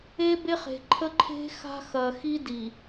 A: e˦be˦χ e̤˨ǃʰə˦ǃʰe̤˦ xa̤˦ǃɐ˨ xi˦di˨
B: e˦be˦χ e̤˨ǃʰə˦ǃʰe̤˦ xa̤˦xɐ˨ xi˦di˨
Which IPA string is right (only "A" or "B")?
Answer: B